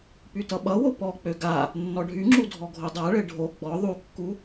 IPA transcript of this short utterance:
pytʌɓʌwo pɔk͡pø ɡa | nːɔɖʱyŋ͡ǁu dʱɔɡʱodˤaɭɘ ɖʱo ɡ͡bɔ ðˤukːu

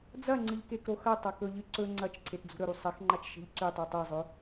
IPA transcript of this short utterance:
d͡zɐŋ͡ǀɨʎ kekɾoxɐtˤɐ kɵʎɨ ǀɵ ŋ͡ǀɐt͡ʃǀʰet d͡zṳɾɵɾu sˤɐxŋ͡ǃat͡ʃ ʃe̤ʎǀʉtˤʉ tˤezˤɵ

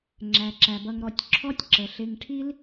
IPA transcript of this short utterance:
ŋ͡ǁæ˩ǁæ˩bʌ˨ŋɾɔ˨tʲ ǁʰɔ˦tʲǁə˩ɬɪ˨ŋ ʈʰi˦l

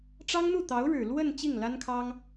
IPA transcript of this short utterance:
ʈ͡ʂɑ˥ŋn̪u˥˩t̪ɑ˧˥ʊ̯ɻɻ̩˨˩ lwə˥˧n t͡ɕi˥˩ŋla˥nkʰɑ˥ŋ

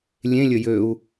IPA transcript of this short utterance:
lʲẽlʲə jøu̯

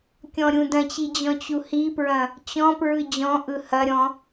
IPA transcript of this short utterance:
kʲɔ̃ɾʲũdɐ̃t͡ɕi d͡ʑɔ̃t͡ɕuhipɹɐ̃ | t͡ɕɔ̃pɹɯ d͡ʑɔ̃ʔɯ hɐɾʲɔ̃

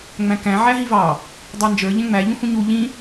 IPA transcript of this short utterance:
ŋ͡mæ̃kæ̃ ʕæɦivɑ | dˤɑnd͡ʒə˞ ʎɛ̃ŋ͡mæ ʎũhũɲu ʎĩ

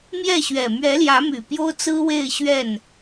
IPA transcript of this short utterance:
mjɛ˥˩ɕɥɛ˨˩ mɥɛ˧˥ljä˧˥my˨˩ pjo˥ʊ̯ t͡sɹ̩˥we˥˧ɪ̯ ɕɥɛ˥˩n

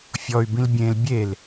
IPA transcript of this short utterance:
fʲɔy̯ bĩlbʲẽl bʲel

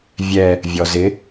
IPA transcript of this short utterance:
vʲɛ | vʲɔzɪ

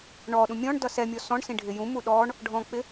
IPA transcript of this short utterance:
ɳɔɗũ mʲɔ̃ɳdʌs ɛmʲɔ sɔ̃ɳ sĩɖʱɪjũmu ɗɔɳ | ɖʱɔ̃k͡pɪ

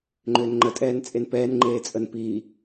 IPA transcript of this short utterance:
ŋ͡ǃʏːnŋ͡ǃə tʼɛːnt͡sʼenpɛːn ŋ͡ǃeːt͡sʼənpiː

